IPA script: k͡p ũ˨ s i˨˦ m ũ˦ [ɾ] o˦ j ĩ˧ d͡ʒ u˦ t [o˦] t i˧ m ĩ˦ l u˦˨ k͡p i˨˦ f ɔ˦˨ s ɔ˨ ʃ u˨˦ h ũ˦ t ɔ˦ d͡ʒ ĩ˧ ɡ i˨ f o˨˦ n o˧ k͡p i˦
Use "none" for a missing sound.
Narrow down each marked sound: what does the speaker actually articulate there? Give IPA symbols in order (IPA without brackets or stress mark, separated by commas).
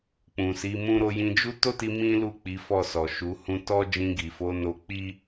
ɾ, o˦